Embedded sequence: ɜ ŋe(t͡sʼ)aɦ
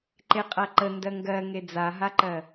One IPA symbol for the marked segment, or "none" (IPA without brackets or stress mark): d͡z